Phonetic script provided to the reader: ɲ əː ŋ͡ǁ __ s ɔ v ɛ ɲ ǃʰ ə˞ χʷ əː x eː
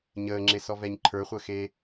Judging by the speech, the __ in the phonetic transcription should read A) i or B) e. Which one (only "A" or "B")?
B